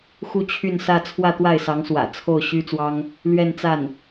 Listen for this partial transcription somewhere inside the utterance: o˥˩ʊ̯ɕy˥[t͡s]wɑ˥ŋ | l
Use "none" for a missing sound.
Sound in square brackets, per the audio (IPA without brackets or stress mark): t͡s